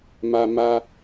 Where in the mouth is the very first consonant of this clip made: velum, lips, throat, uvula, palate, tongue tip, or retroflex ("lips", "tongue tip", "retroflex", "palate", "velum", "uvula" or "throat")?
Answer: lips